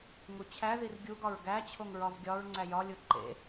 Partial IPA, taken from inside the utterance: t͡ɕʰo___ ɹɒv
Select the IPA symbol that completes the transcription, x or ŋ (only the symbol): ŋ